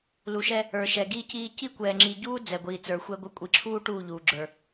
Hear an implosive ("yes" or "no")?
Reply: no